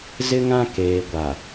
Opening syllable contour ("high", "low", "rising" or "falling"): high